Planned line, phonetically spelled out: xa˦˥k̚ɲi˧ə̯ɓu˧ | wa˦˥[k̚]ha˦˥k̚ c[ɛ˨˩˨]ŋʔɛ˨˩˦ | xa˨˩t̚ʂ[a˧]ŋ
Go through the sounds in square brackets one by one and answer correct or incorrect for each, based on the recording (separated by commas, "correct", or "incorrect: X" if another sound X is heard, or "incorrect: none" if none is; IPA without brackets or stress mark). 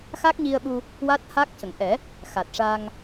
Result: incorrect: t̚, incorrect: ə˨˩˨, correct